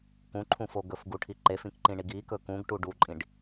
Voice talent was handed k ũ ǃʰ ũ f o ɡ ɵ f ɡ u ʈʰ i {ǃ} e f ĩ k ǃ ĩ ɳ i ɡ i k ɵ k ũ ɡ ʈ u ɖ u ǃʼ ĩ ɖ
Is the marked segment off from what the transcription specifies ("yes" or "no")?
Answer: no